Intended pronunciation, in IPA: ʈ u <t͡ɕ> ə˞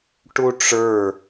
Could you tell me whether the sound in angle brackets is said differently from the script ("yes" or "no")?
yes